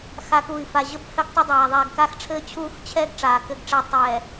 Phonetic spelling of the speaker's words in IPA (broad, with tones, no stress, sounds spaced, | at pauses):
x a˨ k uː˨ i̯ f a˨ ʑ ɘ˦ b h ɘ˦ ɡ tˤ ɘ˦ dˤ aː˨ ðˤ ɛː˨ ɡ k aː˦ x ʈ͡ʂʰ ɘː˦ t͡ɕʰ uː˦ x t͡ɕʰ ɛː˦ ɡ ʈ͡ʂ aː˨ k ɘ˦˨ ɡ ʈ͡ʂ ɛ˦ tˤ ɛː˨